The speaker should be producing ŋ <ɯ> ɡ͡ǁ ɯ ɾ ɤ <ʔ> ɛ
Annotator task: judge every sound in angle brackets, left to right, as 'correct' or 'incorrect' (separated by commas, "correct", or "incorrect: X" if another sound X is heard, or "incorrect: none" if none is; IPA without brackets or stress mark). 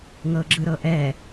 incorrect: ɤ, correct